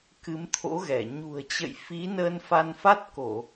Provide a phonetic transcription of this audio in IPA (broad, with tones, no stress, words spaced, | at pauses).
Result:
kɨ˨˦mt̪ʰo̰˧˥ɣɛ˧˩ ɲṳ˨˩ə̯t͡ɕə̰˧˨jfi˨˦ nəː˧nfa˧nfa˦˥t̚ ko˧˩˨